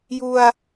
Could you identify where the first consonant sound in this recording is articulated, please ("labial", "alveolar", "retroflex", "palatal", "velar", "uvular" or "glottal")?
palatal